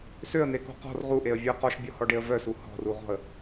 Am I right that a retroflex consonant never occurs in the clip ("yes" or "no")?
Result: no